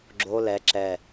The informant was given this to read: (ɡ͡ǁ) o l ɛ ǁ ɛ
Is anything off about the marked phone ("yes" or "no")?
no